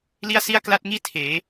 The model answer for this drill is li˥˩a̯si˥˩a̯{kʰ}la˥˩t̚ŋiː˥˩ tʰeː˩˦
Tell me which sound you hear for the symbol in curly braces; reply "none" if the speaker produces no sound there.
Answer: k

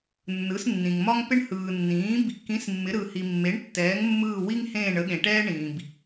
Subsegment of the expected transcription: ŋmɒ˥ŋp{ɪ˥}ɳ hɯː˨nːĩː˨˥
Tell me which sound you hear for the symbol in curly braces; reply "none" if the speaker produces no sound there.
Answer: ɪ˥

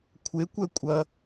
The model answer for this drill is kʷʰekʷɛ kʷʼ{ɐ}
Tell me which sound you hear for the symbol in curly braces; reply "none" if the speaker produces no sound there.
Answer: ɐ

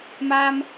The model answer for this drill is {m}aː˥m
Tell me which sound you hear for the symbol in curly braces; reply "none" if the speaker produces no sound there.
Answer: m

